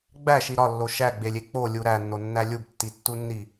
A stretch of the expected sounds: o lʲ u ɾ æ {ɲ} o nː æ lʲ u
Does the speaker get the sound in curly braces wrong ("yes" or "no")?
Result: yes